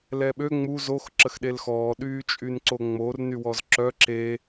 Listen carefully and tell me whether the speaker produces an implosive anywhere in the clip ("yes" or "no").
yes